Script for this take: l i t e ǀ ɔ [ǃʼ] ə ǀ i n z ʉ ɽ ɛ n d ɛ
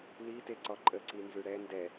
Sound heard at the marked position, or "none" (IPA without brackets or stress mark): ǃʼ